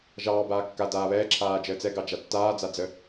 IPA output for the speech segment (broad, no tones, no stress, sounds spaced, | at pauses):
ʒ ɑː b aː kː a d aː β ɛː ǁʰ aː d͡ʒ əː t͡s ɛ ɡ ɑ d͡ʒ a tː aː d͡z a d͡z ə